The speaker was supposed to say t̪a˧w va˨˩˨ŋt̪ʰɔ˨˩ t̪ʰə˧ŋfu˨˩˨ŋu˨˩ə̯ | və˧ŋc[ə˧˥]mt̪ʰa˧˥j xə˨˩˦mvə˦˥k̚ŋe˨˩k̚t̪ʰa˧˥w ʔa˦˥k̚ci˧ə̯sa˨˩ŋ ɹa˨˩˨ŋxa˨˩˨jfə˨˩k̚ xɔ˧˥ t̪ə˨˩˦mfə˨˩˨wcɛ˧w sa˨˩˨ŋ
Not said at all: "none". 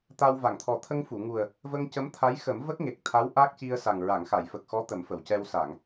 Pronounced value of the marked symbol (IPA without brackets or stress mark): ə˧˥